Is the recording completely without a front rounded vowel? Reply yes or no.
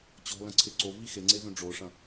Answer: no